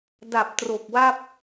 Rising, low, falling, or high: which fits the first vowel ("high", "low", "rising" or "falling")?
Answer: low